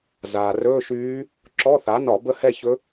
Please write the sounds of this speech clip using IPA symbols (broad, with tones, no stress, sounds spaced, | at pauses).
z aː˩ r ɵː˧˥˧ ʃ yː˧˥ | ǁ ɔ˧˥˧ θ a˩˥ n ɒ˧˩˧ b ə˥˧ h ɛ˥˧ ç ɵ˧˥